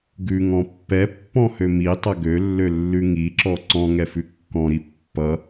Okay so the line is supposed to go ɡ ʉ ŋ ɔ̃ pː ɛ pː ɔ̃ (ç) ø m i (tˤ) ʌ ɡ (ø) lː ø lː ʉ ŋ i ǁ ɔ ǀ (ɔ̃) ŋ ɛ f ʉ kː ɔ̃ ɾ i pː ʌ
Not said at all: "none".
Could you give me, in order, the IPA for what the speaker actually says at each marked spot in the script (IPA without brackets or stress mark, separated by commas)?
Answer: h, tˤ, ø, ɔ̃